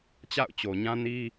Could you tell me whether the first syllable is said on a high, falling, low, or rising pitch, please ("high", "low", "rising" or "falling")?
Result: falling